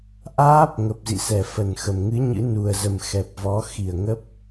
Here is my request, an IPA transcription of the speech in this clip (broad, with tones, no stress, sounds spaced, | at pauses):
ʔ aː˦˥ p̚ ŋ ə˨˩ p̚ z ḭ˧˨ s ɛ˧˩ f ə˧˩ n x ə˨˩ m ŋ ɨ˨˦ ɲ ɨ̰˧˥ n u˨˩ ə̯ z ə˨˩ m x ɛ˨˩ p̚ v ɔ˨˦ x i˧˩ ə̯ ŋ ə˦˥ p̚